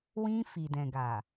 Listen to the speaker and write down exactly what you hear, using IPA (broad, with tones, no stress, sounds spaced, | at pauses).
w ĩ˧ f i˨ d ɛ̃˨ ɡ a˨